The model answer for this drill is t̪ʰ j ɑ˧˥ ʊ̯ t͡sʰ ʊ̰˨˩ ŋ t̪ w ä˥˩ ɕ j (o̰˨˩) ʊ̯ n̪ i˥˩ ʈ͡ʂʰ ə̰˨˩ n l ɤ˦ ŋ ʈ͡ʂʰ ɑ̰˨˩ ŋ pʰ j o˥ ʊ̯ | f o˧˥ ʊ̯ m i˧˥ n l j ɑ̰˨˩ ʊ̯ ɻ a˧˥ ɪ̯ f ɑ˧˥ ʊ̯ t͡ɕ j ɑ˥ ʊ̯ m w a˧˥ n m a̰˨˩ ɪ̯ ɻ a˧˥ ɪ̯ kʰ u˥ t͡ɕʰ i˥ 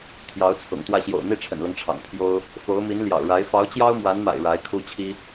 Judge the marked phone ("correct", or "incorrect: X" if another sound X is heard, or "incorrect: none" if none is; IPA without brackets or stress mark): correct